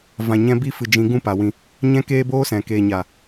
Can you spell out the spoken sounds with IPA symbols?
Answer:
vã˨ɲɛ̃˧bi˧fɨ˨ d͡ʒĩ˨˦ɡũ˦˨pa˨wĩ˧ | ɲɛ̃˦keː˦boː˦sɛ̃˨ keː˨ɲa˨

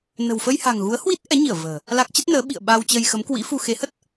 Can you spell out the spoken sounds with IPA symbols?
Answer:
nə̤˨˩wfə˧jha̤˨˩ŋ ɣu˨˦ə̯hwi˦˥t̚ ʔɛ˨˦ɲi˧˩ə̯ və̤ː˨˩ | la˦˥k̚ t͡ɕə˦˥t̚nəː˨˦ ɓḭ˧˨ə̯ ɓa˧wt͡ɕə˧j xə˨˦mkwḭ˧˥fu˧ xe˨˦hə˦˥t̚

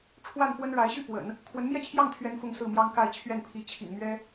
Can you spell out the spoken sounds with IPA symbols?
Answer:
ʈ͡ʂʰwa˥˩nfwə˥nɻa˧˥ɪ̯ɕy˥˩ pwə̰˨˩˦n | kʰwə˧˥nmjɛ˥˧t͡ɕʰjɑ˥˩ŋ t̪ʰɥɛ˥nfʊ˥˧ŋsɹ̩˥˩mjɑ˥ŋ ka˥˧ɪ̯t͡ɕʰɥɛ˥˩npʰi˧˥ t͡ɕʰḭ˨˩ŋmɥɛ˥

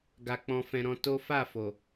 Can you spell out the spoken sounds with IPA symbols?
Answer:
ɡa˧k͡pɔ̃˧fɛ̃˧ ɾɔ̃˧to˦ fa˦˨fo˨

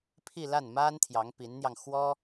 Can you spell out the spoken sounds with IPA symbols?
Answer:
pʰi˥˧la˥˩nma˥n t̪ʰjɑ˧˥ŋpi˧˥nn̪jɑ˧ŋ xwɔ˥

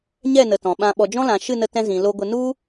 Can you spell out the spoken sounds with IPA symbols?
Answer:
ɲɛ˦˨nə˨ tɔ̃˨ɓã˧ ɓɔ˨d͡ʒɔ̃˦lã˨ ʃɨ˦˨nə˧tɛ̃˧ zĩ˨ lo˧ɡʷə˧ nu˦

